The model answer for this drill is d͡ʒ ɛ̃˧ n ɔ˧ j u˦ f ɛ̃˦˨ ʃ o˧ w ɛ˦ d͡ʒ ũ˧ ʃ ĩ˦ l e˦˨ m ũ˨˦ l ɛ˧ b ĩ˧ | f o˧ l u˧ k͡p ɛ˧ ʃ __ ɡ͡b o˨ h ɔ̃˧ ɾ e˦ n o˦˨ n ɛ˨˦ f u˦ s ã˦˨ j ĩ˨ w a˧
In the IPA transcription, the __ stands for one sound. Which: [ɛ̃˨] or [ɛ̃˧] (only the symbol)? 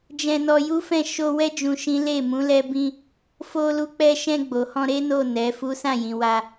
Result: ɛ̃˧